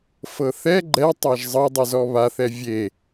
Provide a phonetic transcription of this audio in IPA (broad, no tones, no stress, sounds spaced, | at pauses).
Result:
f ɤ θ ɛ ɡ͡ǃ ɛ tˤ a ʒ zˤ ɤ dˤ ɯ z ɔ β a θ ɛ vʲ e